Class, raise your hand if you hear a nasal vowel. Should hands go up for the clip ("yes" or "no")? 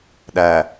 no